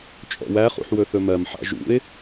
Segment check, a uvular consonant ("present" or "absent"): present